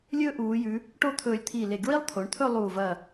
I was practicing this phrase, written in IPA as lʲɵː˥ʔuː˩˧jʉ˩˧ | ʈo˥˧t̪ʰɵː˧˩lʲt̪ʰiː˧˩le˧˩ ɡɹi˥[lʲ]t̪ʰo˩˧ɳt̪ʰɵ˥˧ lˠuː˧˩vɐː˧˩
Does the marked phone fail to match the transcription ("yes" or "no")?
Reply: yes